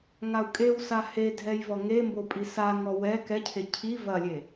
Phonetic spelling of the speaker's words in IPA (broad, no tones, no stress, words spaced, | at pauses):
ŋau̯kʼewsa hedʱɛj vɔŋembo pʼisaŋɔ wɛ kɛcʰe cʰi vɐlʲe